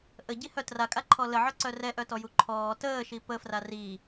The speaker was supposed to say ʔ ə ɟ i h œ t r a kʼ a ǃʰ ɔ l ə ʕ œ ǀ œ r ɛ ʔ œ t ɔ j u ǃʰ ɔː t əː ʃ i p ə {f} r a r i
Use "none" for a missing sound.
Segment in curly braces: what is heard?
f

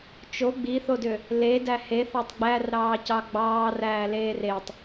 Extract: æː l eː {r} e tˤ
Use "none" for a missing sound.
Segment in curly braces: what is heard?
r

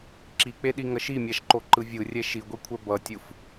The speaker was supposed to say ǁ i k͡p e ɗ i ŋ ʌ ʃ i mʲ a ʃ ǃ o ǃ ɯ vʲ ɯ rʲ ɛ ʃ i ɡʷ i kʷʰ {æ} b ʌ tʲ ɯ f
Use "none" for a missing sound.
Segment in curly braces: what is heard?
ɛ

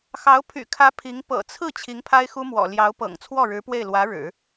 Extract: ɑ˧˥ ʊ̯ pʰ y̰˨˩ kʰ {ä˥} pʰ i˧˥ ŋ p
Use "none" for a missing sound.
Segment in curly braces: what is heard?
ä˧˥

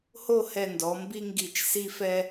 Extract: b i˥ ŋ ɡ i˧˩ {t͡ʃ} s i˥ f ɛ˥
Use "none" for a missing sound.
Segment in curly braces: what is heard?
t͡ʃ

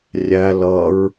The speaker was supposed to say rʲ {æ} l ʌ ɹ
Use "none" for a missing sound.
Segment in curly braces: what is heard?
æ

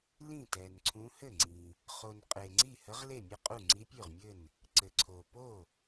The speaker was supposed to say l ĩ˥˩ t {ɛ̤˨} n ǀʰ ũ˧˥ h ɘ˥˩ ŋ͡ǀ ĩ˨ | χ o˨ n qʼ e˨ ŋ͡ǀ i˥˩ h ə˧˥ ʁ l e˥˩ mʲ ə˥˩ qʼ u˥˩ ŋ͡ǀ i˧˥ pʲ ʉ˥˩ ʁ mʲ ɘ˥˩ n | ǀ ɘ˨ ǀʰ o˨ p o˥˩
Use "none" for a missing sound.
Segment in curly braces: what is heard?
ɛ˨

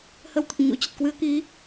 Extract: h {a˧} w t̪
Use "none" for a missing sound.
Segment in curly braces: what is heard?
ə˧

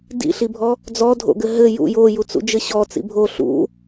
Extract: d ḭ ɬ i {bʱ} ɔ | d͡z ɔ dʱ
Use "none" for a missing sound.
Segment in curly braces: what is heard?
bʱ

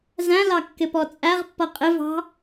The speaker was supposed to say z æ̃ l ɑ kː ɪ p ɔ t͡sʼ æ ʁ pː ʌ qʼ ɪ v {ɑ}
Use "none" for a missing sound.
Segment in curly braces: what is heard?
ɑ̤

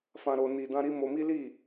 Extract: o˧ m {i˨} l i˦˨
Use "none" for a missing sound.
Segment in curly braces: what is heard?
i˦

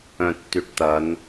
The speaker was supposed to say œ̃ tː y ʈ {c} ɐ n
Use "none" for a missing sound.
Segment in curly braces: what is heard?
t̪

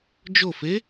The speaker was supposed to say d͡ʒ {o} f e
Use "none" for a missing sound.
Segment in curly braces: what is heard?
o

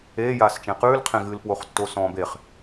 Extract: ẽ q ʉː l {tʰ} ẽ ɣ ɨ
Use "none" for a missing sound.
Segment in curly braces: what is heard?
qʰ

